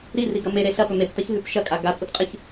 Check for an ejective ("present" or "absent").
present